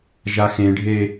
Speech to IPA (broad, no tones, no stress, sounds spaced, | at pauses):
ʒ a x ẽ ɖʱ e